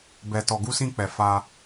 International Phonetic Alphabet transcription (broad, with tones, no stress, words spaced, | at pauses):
bɛ˧ tɔ˧ɡu˦sĩ˦k͡pɛ˧ fa˧